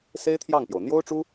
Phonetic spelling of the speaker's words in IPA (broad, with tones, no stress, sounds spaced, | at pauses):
s e˥ ɪ̯ t̪ʰ j ɑ˥˩ ŋ p j o˩ ʊ̯ n̪ j o˥ ʊ̯ ʈ͡ʂ u˥